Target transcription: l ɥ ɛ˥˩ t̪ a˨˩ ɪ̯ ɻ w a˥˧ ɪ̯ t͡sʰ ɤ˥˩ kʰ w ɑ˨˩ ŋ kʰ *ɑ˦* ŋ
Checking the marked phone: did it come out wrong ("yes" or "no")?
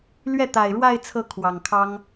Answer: yes